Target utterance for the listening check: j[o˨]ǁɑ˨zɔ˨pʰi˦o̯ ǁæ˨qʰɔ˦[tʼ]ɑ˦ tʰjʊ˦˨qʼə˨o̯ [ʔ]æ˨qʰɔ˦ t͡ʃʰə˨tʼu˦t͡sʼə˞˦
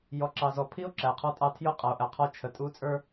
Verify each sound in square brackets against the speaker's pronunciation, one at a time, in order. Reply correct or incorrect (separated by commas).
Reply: incorrect, correct, correct